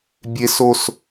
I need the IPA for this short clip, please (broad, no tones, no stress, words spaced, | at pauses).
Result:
bʲes os